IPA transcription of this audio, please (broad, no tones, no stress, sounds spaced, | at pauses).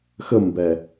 x ə m b ɛ